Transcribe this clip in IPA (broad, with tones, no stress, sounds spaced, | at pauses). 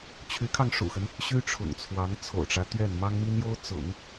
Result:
t͡ɕʰ y˧˥ kʰ ɑ˧ ŋ ʂ ṵ˨˩ x ə˦ n | ɕ y˥ ʈ͡ʂʰ ʊ̰˨˩ ŋ t͡sʰ w ɑ˧˥ ŋ t͡sʰ o̰˨˩ ʊ̯ ʈ͡ʂ ä˦ t̪ ɥ ɛ˥˩ n m ɑ˥ ŋ m i˥ n j o˥ ʊ̯ t͡s ʊ̰˨˩˦ ŋ